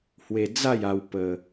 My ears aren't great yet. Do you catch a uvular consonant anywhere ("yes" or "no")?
no